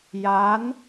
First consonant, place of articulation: palatal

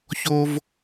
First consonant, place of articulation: palatal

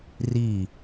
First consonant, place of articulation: alveolar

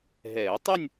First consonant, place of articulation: glottal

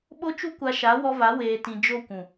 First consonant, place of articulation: labial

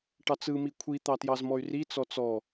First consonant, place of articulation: retroflex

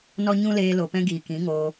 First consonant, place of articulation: alveolar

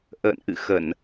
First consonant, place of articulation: glottal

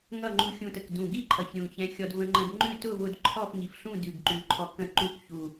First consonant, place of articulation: velar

